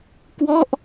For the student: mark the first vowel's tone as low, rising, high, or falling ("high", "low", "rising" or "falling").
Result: falling